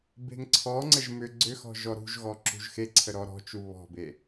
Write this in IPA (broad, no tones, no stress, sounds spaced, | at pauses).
b e̤ ŋ ǀʰ ɔ ŋ͡ǀ ə ʒ m ʏ ɡ͡ǀ ʏ x ɔ̤ ʒ ɔ ɾ ṳ ʒ ɣ ɔ ǁ ṳ ʒ x e ǀʰ ə ɾ ɔ ɾ ɔ̤ t͡ʃ u β ɔ̤ b e